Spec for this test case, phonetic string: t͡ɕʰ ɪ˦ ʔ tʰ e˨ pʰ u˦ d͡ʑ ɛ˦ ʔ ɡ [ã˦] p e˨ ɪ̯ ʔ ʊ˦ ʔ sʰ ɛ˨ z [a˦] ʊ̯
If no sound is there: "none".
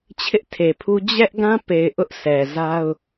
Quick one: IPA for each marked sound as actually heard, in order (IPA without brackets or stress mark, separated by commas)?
ã˦, a˦